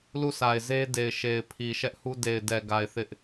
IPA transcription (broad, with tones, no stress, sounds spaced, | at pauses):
l u˦˨ sʰ a˨ ɪ̯ z e˦ d e˨ ɪ̯ ʃ e˨ ɪ̯ pʰ i˨ ʃ ɛ˦ ʔ h u˦ d e˨ ɪ̯ d ɛ˨ ɡ a˨ ɪ̯ θ ɪ˦ ʔ